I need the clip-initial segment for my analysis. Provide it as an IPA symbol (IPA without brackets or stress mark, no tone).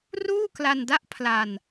r